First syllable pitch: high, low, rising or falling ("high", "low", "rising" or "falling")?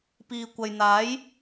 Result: low